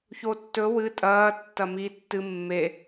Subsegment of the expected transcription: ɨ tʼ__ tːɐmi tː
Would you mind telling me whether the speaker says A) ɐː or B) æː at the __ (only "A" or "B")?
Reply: A